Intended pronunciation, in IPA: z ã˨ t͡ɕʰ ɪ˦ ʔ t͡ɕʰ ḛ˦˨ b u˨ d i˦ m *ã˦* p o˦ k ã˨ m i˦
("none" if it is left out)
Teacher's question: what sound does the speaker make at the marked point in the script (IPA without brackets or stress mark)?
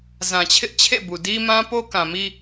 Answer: ã˦